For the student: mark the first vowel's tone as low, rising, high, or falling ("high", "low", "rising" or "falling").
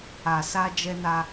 low